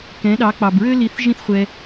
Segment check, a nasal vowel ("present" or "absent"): present